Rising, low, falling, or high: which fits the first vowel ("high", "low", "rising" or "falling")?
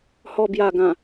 low